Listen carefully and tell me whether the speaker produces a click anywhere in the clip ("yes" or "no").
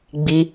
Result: no